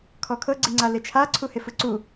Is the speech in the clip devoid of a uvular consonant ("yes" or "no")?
yes